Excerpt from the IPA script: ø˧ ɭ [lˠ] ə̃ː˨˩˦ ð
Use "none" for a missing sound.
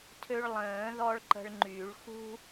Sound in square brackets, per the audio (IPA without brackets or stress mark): lˠ